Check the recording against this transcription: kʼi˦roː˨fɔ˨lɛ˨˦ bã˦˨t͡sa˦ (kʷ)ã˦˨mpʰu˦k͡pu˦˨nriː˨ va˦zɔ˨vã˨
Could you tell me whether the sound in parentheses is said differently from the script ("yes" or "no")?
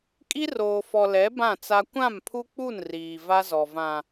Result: no